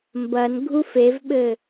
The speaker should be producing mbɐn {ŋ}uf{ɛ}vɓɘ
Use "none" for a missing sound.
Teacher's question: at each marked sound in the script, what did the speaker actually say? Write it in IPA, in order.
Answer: ɡʱ, e

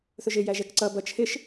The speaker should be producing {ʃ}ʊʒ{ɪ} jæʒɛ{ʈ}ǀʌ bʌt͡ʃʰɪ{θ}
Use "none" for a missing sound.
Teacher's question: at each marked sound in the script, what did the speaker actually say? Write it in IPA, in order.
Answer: θ, ɪ, k, ʃ

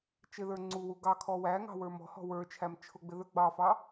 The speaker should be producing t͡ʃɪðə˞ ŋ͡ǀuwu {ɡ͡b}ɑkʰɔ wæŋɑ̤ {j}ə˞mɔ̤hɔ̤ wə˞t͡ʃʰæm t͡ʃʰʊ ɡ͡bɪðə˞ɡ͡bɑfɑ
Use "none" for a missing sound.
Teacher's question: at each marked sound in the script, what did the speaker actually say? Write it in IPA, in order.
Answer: ɡ, w

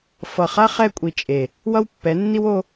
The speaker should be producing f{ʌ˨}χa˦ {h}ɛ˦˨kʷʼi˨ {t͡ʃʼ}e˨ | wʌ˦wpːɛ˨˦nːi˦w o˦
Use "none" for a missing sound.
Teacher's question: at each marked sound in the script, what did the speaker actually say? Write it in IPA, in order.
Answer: ʌ˨, χ, t͡ʃʼ

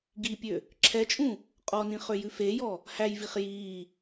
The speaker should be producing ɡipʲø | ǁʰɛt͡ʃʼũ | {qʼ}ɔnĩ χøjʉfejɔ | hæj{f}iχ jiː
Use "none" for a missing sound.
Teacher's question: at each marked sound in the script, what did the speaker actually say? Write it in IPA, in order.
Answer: qʼ, v

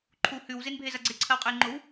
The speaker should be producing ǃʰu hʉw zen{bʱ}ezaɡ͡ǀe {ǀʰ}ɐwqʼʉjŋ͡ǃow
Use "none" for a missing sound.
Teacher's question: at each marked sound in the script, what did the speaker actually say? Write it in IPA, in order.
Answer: bʱ, ǀʰ

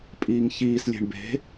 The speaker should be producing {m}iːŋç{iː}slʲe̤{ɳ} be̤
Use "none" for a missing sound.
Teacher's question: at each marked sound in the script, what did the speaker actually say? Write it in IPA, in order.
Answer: pʼ, iː, ɳ

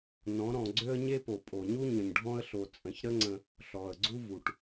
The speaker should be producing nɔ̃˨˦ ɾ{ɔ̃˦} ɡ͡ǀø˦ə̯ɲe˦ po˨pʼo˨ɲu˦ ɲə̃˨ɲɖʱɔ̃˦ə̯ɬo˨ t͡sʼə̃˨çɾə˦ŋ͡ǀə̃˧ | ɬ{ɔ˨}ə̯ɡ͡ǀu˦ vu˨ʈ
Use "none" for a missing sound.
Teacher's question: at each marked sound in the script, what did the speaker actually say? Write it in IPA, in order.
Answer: ɔ̃˧, ɔ˨

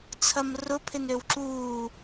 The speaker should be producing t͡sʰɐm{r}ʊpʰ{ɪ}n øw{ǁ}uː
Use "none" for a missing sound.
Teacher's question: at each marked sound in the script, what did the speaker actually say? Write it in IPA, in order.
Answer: r, ɪ, ǁ

